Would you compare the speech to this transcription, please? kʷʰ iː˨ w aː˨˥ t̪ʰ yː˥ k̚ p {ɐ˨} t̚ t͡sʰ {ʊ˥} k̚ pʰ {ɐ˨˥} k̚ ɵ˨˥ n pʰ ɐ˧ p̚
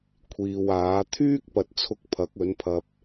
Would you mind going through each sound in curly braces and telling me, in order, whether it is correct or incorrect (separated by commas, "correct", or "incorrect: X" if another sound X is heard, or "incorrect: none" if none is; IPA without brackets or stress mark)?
correct, incorrect: ʊ˧, correct